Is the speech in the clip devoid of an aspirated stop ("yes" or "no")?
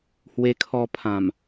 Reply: no